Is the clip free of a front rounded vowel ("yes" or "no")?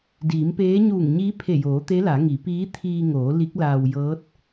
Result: yes